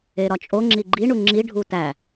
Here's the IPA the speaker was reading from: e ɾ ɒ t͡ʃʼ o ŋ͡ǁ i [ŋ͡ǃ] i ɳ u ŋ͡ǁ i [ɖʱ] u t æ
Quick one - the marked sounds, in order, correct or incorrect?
incorrect: ɡ͡ǃ, correct

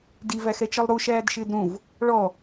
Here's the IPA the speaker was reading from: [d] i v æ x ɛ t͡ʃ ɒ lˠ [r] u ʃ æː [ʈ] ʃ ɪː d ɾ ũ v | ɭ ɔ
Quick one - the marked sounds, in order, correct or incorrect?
correct, incorrect: ɾ, incorrect: d

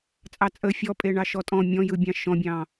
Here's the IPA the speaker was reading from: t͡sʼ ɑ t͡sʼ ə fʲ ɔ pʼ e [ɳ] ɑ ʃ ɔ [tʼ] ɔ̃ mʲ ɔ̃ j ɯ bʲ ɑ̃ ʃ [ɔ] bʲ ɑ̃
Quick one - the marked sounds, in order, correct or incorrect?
correct, correct, incorrect: ɔ̃

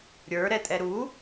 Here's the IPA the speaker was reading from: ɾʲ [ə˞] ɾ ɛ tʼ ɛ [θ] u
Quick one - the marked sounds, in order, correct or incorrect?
correct, incorrect: ɾ

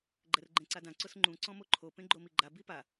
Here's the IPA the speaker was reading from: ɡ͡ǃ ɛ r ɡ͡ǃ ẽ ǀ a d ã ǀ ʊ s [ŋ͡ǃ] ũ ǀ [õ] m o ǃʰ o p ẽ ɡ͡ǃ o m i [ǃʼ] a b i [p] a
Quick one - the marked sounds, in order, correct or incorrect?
correct, incorrect: ɔ̃, incorrect: ɡ͡ǃ, correct

